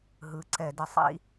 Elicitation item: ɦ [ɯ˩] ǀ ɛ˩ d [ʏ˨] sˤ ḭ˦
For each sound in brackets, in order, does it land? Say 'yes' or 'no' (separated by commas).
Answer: yes, no